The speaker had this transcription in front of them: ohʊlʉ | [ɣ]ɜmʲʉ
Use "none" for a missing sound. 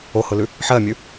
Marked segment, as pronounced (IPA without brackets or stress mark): ħ